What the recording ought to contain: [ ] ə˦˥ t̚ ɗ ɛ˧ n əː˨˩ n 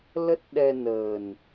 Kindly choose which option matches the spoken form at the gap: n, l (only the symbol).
l